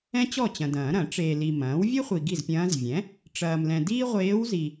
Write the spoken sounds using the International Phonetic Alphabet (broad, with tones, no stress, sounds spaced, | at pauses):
ɛ̃˥ t͡ɕ ɔ˥˩ t͡ɕ ɐ̃˨ d ɐ̃ː˨˩˦ ɾ ɐ̃˨˩˦ ʈ͡ʂ eː˨ l i˨ m ɐ̃ː˩˥ w vʲ e˥ χʷ i˨ ɡ i˥˩ z pʲ ɐ̃ː˧˥ z vʲ ɛ̃˩˥ | ʈ͡ʂ ɐː˨ m l ɛ̃˨ d iː˥ ʁʷ eː˧˥ w z i˨